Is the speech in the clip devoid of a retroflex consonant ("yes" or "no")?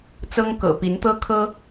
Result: yes